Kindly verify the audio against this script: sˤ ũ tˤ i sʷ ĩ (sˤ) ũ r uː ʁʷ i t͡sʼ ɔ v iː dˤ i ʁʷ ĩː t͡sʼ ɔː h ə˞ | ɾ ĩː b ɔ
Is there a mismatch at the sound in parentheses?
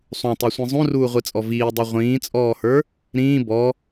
yes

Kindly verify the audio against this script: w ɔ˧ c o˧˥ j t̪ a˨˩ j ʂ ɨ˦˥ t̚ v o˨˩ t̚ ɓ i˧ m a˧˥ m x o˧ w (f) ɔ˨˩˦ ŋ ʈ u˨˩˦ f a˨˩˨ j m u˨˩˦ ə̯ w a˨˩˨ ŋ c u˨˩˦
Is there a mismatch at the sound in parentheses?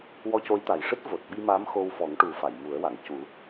no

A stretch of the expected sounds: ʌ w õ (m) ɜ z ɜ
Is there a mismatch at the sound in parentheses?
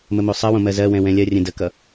no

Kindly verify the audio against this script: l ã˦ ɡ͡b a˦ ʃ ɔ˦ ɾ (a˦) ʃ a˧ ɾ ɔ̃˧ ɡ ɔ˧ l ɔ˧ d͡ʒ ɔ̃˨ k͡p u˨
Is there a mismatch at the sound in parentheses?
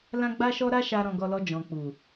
no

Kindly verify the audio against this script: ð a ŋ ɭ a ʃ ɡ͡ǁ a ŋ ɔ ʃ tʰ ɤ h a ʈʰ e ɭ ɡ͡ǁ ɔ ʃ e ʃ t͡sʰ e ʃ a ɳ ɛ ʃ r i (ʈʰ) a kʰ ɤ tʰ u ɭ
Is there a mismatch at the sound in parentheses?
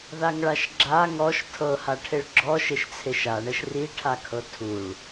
no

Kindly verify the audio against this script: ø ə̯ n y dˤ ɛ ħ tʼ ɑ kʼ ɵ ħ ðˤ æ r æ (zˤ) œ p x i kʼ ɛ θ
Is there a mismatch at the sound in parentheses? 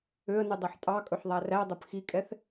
yes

